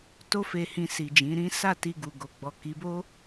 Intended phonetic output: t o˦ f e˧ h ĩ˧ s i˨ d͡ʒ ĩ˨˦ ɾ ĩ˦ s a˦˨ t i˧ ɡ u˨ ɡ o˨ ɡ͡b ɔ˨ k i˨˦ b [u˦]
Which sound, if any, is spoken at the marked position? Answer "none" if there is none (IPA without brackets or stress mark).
o˦